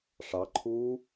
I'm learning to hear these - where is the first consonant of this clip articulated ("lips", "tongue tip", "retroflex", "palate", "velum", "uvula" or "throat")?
retroflex